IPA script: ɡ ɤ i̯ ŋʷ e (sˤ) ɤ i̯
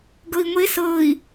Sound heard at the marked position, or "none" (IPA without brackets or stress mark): s